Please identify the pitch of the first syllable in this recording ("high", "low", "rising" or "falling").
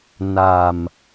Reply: low